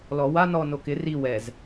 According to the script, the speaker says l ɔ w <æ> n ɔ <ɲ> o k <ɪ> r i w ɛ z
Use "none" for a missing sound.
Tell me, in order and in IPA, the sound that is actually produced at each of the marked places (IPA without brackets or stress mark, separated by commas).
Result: a, n, ɪ